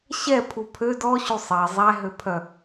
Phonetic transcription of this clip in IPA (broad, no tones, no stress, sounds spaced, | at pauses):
ɕ ɛ pʰ u pʰ ø d ɔ ɕ u sˤ ɛ zˤ æ ɦ ø pʰ œ